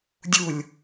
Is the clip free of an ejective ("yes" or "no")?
yes